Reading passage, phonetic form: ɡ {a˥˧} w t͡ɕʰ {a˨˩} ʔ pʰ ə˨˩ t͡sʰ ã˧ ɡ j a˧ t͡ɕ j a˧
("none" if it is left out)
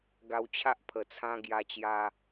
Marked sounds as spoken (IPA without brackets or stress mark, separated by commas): a˧, a˦